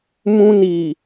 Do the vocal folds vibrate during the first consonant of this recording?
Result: yes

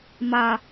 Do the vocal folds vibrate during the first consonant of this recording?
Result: yes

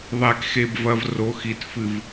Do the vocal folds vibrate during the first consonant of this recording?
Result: yes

